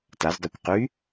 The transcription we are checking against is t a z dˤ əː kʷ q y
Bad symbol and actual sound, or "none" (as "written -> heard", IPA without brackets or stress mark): none